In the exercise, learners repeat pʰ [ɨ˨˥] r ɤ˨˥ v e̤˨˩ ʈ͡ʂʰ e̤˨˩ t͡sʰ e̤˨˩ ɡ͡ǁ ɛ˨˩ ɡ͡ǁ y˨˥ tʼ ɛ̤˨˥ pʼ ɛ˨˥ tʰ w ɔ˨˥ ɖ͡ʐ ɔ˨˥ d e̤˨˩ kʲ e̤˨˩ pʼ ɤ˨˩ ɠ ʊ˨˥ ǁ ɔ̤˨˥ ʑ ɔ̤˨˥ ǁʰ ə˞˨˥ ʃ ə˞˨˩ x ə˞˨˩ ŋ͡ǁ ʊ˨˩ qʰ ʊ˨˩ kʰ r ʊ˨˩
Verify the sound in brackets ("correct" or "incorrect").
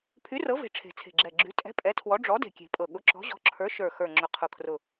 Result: incorrect